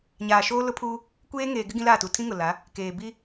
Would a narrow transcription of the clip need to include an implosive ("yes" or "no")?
no